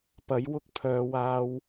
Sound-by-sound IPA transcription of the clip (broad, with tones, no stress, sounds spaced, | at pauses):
p ɐ˨˥ j w ʊ˥ k̚ pʰ œː˨˧ w aː˧ w